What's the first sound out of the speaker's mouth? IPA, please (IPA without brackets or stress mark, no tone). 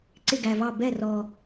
ǀ